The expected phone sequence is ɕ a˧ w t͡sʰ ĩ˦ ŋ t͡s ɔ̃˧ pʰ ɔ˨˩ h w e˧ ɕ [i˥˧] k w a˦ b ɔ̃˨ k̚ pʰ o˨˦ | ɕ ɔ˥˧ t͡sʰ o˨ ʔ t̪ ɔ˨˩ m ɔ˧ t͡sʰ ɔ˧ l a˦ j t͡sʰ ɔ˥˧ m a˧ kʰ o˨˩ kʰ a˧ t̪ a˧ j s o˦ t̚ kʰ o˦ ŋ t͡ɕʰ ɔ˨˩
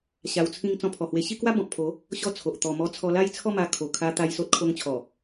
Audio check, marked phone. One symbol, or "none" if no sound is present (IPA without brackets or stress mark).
i˥˧